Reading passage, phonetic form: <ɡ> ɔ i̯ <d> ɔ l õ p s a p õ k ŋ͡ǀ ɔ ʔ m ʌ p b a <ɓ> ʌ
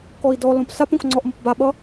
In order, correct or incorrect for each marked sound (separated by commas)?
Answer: incorrect, correct, correct